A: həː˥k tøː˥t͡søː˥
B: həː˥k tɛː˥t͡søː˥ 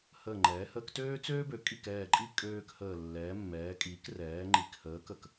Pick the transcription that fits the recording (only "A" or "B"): A